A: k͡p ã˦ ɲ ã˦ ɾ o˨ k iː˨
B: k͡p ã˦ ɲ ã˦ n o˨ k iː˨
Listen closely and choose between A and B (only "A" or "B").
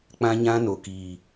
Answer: B